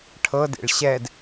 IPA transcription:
ʈʰ ɤ d ḛ ɭ ɕ ɛ d

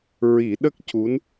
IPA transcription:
ɹ i˨˩˦ ɗ ə˦˥ k̚ c u˧˥ n

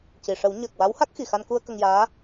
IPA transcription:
c i˨˩ ʂ ə˨˩˦ w ɲ əː˨˩ k̚ w a˧˥ w h a˦˥ k̚ x i˨˩ x a˧ n k u˧ ə̯ k ə˧ ŋ j aː˧˥

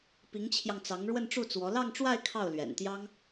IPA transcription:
p i˧˥ ŋ t͡ɕʰ j ɑ˧ ŋ t͡s ɑ˧˥ ŋ ɻ w ə˥˧ n ʈ͡ʂ u˥˩ t͡s w ɔ˧˥ l ɑ˥˧ ŋ ʈ͡ʂ w a˥˧ ɪ̯ kʰ ɑ˥˩ ʊ̯ l ɥ ɛ̰˨˩ n t̪ j ɑ˥ ŋ

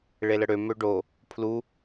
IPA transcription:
ɭ e l ə ɽ ø m ø ɖ o | pʰ l u

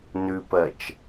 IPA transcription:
n ʉ p ɜ t͡ʃ

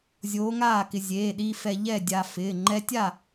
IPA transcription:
zʲ oː˧˥ ŋ aː˥˨ k ɪ˧ zʲ eː˩˧˩ ɗ i˧ f ɛ˧ ʎ ɛ˥˨ dʲ aː˧ f ɪː˩˧˩ ŋ͡ǃ ɛ˧˥ tʲ a˥˨

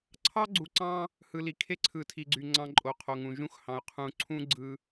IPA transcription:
ǀʰ ɑ˦ ɡ͡ǀ u˨ ǀ ɑ̃˦ | h ɯ˨ l i˨ kʰ e˦ ǀʰ ɯ˨ tʰ i˨ ɡ͡ǀ y˨ ŋ͡ǀ ɑ̃˦ ǃʼ o˨ qʰ o˨ ŋ ũ˨ ʒ ũ˦ x h ɑ̃˨ ʊ̯ qʰ ũ˨ ǀʰ ũ˦ ɡ͡ǀ ɯ˦

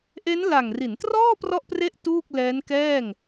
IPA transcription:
ʔ e˦˥ n l a˨˩ ŋ r i˩˦ n t r ɔː˥˩ p r ɔ˥˩ ʔ p r e˥˩ ʔ t uː˥˩ k̚ l ɛː˦˥ n k ɛː˥˩ ŋ

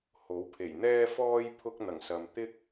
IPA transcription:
h o˨˥ w pʰ e˨˩ j n̪ ɛː˥ f ɔː˥ j pʰ ʊ˥ k̚ n̪ ɐ˨˩ ŋ s ɐ˨ m t̪ ɪ˥ k̚

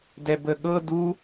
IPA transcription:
d ɛ b ə ɠ ɤ d u

